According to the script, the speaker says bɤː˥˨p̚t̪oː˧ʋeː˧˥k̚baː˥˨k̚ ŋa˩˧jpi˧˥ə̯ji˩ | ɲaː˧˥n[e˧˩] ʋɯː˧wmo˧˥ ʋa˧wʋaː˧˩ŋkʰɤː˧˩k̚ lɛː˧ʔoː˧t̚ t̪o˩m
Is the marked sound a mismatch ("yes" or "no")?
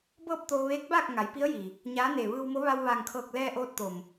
no